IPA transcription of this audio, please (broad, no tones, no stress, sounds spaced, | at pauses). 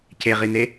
c e ʁ i n e